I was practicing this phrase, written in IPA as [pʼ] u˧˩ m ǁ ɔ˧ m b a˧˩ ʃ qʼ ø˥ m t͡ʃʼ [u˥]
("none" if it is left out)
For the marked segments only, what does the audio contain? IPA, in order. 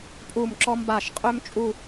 pʼ, u˥˧

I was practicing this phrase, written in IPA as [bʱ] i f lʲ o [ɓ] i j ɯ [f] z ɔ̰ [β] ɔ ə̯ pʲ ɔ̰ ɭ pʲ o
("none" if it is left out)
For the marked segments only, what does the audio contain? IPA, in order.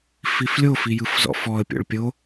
f, f, f, f

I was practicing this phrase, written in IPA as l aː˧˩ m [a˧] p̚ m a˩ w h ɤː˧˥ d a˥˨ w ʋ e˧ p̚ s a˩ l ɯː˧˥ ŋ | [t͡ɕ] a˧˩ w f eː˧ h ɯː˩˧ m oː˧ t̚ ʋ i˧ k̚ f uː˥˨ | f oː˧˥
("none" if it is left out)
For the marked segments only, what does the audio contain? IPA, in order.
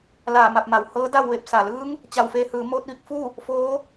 a˧˩, t͡ɕ

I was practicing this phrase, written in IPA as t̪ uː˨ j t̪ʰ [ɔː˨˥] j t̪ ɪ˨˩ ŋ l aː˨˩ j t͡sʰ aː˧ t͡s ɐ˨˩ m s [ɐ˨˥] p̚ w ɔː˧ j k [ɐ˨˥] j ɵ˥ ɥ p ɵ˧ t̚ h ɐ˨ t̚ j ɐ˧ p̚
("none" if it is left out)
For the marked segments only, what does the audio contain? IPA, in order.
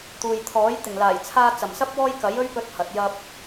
ɔː˨˥, ɐ˧, ɐ˨˥

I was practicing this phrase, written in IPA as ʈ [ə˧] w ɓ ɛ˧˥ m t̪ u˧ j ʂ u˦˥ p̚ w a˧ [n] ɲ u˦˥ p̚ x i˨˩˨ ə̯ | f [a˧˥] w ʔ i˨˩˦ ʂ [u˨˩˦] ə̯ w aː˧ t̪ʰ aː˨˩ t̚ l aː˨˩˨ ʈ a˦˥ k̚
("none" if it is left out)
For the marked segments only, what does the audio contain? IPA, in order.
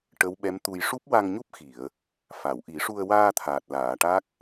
ə˧˥, ŋ, a˨˩˨, u˧

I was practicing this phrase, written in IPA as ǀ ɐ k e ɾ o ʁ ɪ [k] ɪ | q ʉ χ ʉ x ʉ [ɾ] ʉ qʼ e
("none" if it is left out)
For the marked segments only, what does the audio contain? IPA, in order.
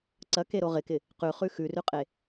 k, r

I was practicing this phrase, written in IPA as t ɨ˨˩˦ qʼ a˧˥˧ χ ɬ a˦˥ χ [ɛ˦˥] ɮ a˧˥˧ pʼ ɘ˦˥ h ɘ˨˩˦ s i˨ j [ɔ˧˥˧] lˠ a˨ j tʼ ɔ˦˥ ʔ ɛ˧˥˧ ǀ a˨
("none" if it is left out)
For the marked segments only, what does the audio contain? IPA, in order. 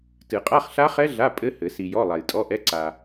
ɛ˦˥, ɔ˧˥˧

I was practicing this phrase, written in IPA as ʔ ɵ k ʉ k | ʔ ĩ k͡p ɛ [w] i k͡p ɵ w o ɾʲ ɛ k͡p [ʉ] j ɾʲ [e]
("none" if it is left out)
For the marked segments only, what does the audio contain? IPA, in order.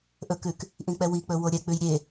w, ʉ, e

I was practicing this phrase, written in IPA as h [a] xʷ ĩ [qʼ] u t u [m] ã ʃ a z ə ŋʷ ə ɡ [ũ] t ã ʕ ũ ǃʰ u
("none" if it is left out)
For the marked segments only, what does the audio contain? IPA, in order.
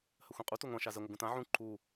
ə, qʼ, ŋʷ, ũ

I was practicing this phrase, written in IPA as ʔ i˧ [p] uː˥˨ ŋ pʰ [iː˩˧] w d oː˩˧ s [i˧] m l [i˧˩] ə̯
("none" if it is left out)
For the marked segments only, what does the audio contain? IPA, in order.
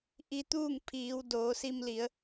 t̪, iː˩˧, i˧, i˩˧

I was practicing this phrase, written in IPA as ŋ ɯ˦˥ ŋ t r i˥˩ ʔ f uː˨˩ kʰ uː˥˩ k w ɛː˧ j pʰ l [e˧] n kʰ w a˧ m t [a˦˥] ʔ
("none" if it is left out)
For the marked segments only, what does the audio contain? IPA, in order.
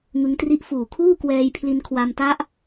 i˧, a˦˥

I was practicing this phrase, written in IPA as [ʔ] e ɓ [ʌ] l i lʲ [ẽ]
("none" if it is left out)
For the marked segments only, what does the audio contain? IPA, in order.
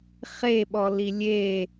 χ, ɔ, e

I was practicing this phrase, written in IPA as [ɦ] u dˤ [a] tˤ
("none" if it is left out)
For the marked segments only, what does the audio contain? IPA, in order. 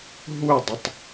ɦ, ə

